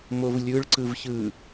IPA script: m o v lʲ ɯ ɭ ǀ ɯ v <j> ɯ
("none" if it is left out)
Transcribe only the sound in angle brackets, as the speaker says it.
ç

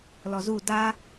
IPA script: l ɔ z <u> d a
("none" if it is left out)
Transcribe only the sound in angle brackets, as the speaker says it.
u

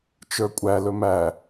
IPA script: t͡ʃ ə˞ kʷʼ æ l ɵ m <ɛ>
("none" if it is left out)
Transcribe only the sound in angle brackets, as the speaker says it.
æ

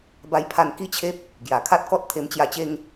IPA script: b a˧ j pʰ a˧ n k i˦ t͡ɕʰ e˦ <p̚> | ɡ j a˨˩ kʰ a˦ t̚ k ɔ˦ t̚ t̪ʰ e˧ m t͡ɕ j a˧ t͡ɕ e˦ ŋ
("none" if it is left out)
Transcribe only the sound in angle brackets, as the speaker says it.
p̚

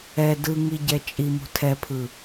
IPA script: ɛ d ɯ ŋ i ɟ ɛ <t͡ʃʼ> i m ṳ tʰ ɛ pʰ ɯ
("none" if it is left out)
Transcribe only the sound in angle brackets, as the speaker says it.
t͡ʃʼ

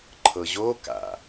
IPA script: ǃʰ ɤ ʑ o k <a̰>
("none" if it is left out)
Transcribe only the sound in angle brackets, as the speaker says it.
a̰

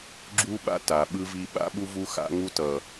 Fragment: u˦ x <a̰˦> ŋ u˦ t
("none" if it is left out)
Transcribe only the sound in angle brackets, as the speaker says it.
a̰˦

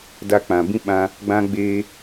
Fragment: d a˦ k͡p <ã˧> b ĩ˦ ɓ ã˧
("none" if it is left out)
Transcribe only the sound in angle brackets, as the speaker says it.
ã˧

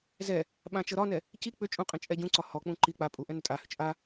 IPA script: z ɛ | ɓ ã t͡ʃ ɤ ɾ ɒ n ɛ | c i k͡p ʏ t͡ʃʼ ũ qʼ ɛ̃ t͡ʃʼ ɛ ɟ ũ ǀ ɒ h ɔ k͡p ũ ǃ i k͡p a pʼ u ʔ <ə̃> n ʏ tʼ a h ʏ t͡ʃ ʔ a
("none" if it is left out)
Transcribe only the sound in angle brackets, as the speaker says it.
ɛ̃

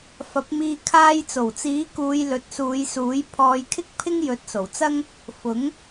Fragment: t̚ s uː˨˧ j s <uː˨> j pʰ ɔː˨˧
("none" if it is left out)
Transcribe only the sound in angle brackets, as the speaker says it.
uː˨˥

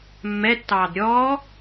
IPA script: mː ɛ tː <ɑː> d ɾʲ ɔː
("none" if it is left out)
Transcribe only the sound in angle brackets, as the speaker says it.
ɑː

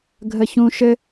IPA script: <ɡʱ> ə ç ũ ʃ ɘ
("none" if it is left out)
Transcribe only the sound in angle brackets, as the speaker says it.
ɡʱ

